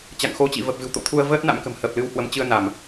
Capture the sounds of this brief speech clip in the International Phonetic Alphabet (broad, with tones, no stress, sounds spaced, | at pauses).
t͡ɕ a̰˧˨ ŋ x o˧ t͡ɕ ḭ˧˨ v ə˨˩ p̚ v ɨ̤˨˩ w t̪ o̰˧˨ t̪ʰ u˧ ə̯ v əː˦˥ t̚ n a̰˧˥ m k ə̤˨˩ m h əː˨˩ p̚ l ɨ˨˦ w h w ə˨˦ m t͡ɕ ɨ˧ ə̯ n a˧˩˨ m